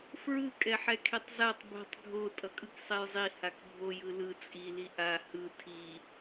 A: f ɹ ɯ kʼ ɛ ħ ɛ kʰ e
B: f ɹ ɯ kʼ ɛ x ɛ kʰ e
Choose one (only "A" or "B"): A